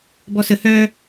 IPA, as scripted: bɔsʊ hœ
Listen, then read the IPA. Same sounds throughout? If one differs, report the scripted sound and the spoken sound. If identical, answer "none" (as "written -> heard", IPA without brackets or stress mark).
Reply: ʊ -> ə